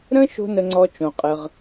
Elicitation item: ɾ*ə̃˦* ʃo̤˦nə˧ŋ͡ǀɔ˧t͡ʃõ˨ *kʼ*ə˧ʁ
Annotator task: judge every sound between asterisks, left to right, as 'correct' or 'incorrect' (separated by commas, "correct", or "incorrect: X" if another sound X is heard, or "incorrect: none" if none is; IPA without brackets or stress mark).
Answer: correct, incorrect: qʼ